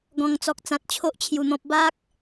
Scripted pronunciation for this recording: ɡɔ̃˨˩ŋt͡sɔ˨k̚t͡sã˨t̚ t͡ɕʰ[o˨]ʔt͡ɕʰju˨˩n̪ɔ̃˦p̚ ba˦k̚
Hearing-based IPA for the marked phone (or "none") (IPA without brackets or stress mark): o˦